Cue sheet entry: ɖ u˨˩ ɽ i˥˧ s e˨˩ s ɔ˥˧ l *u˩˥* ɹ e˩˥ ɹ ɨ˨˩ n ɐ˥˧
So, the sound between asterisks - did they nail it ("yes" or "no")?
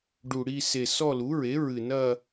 yes